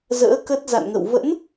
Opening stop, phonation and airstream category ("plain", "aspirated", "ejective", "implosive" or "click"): plain